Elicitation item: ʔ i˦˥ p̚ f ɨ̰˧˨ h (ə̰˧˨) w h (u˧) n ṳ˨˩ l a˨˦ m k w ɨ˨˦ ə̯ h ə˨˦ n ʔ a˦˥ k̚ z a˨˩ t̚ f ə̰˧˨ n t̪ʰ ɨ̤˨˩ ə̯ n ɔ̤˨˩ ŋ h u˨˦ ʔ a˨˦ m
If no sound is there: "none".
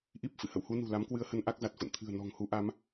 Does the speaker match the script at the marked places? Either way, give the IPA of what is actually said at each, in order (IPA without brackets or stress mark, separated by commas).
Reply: ə̰˧˨, u˧